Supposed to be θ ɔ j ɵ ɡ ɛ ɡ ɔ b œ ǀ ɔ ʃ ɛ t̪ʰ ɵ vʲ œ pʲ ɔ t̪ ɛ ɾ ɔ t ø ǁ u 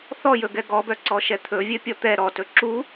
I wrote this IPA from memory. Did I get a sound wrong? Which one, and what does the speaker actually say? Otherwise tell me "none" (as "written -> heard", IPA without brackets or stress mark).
ø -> ɵ